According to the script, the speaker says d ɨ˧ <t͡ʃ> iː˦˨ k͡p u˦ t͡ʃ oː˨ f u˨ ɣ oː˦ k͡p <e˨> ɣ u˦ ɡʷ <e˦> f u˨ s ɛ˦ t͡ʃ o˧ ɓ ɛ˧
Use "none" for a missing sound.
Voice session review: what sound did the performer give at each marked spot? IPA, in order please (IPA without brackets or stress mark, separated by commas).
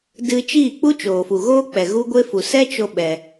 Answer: t͡ʃ, ɛ˨, e˦